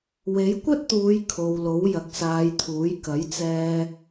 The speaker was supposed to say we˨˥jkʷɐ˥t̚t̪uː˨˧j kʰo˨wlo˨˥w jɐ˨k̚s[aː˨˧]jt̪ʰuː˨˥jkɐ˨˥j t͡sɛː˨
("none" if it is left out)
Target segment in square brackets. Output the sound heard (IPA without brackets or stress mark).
aː˨˧